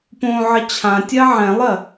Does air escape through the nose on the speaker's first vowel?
yes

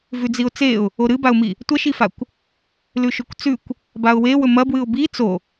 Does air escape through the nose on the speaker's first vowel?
no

